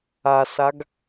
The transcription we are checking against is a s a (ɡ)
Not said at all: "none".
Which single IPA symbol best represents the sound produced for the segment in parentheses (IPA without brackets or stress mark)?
ɡ